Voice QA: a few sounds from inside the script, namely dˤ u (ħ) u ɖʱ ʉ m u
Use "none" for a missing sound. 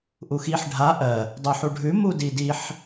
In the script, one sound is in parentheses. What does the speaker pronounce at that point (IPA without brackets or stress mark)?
ħ